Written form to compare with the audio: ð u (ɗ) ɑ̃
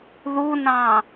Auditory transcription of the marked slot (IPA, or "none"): n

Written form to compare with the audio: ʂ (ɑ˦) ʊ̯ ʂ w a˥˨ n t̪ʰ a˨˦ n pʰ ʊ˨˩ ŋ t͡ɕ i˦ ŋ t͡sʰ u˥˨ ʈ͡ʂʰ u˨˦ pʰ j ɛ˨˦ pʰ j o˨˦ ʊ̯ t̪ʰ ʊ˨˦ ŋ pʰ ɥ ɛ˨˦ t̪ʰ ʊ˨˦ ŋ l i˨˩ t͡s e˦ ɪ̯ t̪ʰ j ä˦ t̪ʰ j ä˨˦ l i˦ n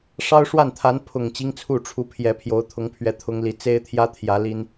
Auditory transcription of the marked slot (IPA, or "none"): ɑ˦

